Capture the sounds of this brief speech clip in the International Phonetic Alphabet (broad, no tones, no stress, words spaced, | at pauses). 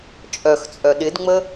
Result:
t͡ʃʼœxt͡sʼœ ɗɪdŋ͡mə